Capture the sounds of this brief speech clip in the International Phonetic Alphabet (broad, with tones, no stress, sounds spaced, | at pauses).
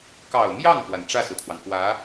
k ɑ˨˩ ʊ̯ m j ɑ˥˩ ŋ k w a˩ n ʈ͡ʂ ä˥˩ s ɹ̩˩ t̪ʰ w ɑ˩ ŋ k w ä˧˥